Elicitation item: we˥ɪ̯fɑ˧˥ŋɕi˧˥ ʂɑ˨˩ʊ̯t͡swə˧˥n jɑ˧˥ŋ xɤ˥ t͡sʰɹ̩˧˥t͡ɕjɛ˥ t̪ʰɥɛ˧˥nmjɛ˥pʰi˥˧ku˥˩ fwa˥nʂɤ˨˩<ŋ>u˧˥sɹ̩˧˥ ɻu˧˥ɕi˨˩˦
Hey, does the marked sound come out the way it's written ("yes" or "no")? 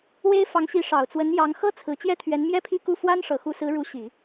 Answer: no